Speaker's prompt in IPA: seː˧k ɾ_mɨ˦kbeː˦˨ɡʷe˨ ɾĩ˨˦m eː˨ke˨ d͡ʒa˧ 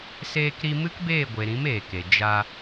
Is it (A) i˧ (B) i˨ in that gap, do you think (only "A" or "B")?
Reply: A